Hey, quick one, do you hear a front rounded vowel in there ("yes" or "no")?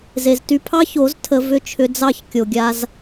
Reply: yes